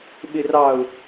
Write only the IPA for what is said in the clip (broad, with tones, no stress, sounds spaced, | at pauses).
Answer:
ɓ ɪ˨ r ɑ˨ ʊ̯